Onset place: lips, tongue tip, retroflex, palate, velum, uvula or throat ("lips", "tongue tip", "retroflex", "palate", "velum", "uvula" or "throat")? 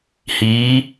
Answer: throat